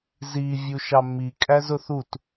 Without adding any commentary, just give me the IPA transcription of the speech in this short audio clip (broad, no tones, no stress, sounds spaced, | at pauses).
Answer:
z i vʲ u ʃ ɑ mː i kʼ æ z ʊ θ u t